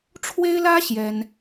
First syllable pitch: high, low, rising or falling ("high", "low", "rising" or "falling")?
high